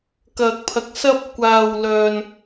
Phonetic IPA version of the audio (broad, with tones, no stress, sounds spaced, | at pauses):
k ɐ˨ k̚ pʰ ɐ˨ k̚ s ɐ˧ p̚ kʷ aː˨ w l œː˨ n